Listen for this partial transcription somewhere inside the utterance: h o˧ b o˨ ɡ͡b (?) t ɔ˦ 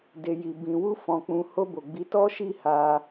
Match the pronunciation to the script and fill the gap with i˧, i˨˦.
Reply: i˨˦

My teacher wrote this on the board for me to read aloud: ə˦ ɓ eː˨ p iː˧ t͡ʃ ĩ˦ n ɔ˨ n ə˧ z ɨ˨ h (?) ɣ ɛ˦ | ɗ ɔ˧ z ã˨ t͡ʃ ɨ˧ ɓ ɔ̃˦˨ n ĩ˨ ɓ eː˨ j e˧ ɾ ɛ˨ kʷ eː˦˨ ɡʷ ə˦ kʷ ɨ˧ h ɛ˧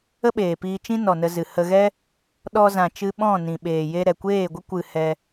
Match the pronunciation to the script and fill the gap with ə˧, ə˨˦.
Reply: ə˧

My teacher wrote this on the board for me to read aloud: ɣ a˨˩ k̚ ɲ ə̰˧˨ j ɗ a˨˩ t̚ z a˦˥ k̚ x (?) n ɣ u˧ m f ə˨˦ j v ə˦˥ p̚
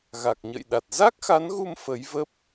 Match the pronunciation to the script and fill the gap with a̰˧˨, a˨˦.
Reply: a˨˦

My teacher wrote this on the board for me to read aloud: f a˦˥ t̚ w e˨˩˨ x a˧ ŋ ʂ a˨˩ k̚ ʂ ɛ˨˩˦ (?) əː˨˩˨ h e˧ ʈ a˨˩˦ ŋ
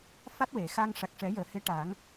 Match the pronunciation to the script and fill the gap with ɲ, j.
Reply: j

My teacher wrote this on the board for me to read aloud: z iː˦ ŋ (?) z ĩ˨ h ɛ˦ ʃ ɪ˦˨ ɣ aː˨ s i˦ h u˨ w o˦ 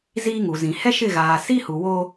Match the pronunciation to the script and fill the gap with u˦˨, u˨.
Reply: u˨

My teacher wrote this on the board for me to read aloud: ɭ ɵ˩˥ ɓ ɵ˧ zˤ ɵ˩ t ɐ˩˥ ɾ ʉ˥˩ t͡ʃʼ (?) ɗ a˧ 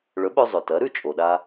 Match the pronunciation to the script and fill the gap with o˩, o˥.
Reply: o˩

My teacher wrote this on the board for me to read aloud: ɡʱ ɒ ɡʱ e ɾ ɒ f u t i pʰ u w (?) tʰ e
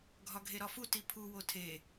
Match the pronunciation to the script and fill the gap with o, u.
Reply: o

